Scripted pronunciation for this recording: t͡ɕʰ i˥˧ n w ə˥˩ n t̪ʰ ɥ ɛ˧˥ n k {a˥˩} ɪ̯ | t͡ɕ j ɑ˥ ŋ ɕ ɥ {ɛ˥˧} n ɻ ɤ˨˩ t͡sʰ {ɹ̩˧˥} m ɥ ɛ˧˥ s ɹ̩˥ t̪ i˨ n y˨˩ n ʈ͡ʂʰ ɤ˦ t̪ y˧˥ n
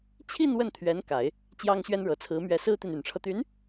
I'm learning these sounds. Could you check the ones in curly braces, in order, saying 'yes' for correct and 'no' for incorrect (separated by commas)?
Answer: no, no, yes